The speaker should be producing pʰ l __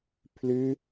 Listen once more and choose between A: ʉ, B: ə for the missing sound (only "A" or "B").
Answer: A